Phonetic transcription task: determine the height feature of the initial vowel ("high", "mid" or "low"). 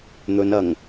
mid